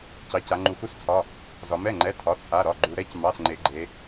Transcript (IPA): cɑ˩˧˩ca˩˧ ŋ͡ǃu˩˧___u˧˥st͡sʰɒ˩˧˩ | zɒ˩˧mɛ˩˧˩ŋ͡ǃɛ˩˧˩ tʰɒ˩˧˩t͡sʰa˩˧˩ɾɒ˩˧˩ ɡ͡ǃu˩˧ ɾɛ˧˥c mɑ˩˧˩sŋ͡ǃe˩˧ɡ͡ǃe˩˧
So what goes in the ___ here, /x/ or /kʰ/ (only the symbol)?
x